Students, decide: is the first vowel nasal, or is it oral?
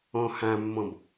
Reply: nasal